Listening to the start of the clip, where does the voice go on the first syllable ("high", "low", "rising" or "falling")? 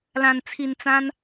low